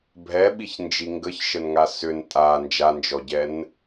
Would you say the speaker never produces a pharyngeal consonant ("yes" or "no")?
yes